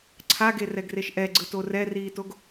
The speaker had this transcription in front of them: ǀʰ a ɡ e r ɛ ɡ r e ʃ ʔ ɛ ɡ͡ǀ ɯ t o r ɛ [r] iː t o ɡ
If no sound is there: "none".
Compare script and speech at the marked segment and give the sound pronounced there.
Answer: r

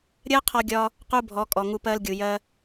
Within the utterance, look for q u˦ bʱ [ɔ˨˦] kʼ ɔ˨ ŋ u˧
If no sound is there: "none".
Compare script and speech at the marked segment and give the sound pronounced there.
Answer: ɔ˨˦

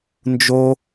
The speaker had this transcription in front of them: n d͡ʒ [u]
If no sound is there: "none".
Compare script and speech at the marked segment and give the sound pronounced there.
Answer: o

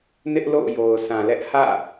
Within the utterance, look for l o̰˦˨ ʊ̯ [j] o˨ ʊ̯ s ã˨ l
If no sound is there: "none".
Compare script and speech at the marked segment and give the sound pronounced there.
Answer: j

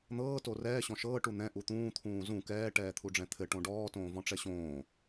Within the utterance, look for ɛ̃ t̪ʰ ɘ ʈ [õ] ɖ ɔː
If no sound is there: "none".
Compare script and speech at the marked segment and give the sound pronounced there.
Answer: õ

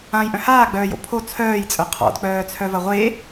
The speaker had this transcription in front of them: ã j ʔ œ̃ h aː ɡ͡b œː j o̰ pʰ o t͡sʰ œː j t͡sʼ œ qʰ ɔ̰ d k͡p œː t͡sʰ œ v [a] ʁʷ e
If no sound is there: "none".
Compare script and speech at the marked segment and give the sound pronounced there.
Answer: ɐ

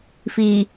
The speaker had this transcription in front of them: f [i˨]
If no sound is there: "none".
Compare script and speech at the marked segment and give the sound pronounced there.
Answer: i˨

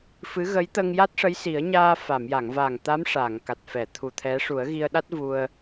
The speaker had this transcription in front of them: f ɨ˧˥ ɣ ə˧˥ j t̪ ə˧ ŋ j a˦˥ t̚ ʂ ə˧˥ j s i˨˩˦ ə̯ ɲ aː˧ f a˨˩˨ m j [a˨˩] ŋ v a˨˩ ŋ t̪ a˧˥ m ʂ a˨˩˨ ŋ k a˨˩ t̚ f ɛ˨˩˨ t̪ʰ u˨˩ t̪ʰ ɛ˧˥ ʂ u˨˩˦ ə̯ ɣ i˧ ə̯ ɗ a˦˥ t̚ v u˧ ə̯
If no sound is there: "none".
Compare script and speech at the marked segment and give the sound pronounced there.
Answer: a˨˩˨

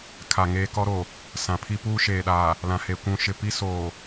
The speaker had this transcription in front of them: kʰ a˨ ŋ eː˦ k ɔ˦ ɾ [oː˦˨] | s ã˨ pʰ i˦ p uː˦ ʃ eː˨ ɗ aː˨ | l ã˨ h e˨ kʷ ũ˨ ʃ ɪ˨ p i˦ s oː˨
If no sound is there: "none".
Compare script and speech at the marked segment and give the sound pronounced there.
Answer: oː˨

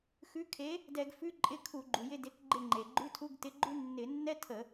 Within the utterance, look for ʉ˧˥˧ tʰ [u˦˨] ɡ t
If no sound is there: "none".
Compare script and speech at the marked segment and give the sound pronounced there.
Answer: u˧˥˧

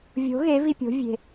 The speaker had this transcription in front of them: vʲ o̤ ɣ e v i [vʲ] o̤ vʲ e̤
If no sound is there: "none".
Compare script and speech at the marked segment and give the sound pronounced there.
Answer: pʲ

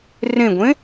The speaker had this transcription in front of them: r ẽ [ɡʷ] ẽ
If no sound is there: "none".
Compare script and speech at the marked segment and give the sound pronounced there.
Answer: ɡʷ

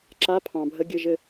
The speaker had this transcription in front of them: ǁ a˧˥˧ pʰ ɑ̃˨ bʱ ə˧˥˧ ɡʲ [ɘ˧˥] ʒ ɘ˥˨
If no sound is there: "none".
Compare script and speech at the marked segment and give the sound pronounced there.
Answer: ɘ˥˨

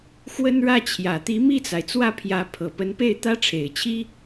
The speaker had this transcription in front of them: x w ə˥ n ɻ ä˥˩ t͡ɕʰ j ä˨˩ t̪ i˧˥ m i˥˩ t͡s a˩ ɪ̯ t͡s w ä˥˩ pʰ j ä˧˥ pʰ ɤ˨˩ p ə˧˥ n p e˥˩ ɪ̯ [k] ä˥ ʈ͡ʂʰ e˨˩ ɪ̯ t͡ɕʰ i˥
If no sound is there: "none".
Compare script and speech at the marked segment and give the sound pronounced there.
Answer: t̪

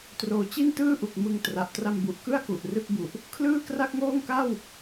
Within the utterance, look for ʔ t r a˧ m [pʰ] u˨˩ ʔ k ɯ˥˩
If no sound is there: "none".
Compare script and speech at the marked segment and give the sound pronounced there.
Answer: b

